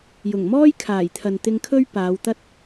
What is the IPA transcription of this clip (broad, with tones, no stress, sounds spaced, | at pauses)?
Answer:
j ʊ˨˩ ŋ m ɔː˥ j kʰ aː˨˩ j t̪ʰ ɐ˨ n t̪ ɪ˧ ŋ kʰ ɵ˥ ɥ p aː˨˧ w t̪ ɐ˥ t̚